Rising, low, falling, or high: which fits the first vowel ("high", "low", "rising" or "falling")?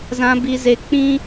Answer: high